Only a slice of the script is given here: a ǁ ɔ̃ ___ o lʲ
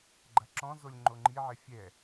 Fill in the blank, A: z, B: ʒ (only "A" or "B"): A